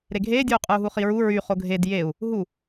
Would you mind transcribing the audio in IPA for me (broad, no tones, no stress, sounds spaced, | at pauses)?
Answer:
ɾ e ɡʱ eː dʲ uː qʼ ɯ u̯ ɦ u χ i ɹ u ɹ y χ o ɡʱ e d j e u̯ | ɦ u